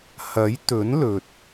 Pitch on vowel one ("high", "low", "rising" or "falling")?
rising